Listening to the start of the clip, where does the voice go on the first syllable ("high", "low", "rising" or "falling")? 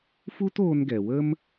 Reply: high